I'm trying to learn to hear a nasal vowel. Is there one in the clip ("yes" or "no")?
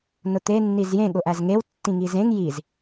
yes